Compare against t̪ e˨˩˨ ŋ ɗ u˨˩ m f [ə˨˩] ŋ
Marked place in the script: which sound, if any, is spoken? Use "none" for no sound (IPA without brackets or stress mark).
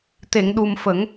ə˨˩˦